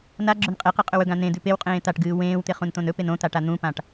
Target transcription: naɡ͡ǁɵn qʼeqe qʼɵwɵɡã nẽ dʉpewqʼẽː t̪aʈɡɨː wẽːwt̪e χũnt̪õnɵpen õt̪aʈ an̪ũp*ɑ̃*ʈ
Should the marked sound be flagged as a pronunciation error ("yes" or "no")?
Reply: yes